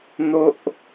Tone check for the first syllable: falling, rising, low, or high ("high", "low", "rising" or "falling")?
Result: high